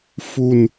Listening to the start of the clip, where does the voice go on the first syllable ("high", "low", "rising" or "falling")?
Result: low